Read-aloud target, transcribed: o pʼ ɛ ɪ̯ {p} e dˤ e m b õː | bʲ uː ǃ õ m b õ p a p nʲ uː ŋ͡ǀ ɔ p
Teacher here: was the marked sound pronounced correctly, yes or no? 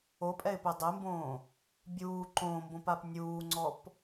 yes